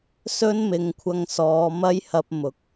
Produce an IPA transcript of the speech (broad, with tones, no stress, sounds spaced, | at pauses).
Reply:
s ɵ˥ n m ɪ˨˧ ŋ kʷʰ ɐ˧ ŋ s ɔː˨˧ m ɐ˥ j h ɐ˧ p̚ m ʊ˨˥ k̚